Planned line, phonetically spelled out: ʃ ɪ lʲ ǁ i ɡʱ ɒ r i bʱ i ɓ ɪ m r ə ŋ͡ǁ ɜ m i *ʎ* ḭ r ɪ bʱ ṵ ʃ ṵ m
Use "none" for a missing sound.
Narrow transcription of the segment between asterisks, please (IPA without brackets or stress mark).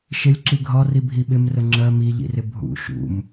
ʎ